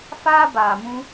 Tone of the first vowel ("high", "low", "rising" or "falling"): high